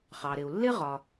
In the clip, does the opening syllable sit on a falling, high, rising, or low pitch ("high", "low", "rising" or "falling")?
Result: low